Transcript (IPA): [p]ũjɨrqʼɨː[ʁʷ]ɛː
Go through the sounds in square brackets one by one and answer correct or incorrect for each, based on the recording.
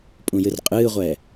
incorrect, correct

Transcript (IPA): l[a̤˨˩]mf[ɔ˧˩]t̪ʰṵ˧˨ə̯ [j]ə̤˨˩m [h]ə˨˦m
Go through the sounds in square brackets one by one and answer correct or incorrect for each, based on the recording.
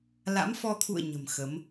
incorrect, incorrect, incorrect, incorrect

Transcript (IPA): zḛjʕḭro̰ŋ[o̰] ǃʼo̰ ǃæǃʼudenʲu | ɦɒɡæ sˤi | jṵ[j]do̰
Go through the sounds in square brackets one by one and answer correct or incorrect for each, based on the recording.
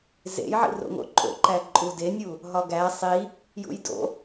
correct, correct

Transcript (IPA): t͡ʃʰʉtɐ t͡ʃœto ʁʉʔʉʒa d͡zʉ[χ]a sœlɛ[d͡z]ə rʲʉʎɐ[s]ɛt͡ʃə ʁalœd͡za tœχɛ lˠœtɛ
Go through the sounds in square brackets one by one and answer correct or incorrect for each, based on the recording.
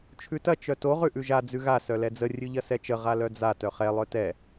incorrect, correct, correct

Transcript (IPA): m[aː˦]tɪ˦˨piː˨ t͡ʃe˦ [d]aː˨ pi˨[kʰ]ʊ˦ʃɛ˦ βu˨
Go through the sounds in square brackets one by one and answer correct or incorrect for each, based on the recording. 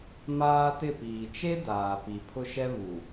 correct, correct, incorrect

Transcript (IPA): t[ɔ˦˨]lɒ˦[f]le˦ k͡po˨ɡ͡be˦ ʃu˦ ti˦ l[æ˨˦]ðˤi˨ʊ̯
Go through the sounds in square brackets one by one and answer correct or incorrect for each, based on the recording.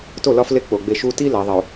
incorrect, correct, correct

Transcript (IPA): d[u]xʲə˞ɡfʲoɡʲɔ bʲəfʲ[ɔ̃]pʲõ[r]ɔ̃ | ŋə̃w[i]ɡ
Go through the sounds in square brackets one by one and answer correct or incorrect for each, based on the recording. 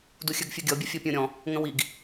correct, incorrect, incorrect, correct

